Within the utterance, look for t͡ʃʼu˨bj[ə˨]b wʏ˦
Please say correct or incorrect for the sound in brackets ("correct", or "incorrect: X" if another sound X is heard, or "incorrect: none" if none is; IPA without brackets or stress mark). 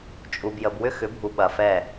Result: correct